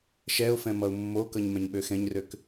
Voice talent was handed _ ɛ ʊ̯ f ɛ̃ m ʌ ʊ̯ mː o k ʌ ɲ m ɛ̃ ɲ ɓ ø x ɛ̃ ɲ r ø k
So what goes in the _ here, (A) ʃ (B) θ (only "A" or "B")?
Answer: A